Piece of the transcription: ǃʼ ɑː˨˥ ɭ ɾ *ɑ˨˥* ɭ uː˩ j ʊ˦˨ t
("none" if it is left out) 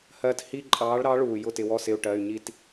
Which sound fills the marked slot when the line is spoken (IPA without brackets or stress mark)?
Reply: ɑ˨˥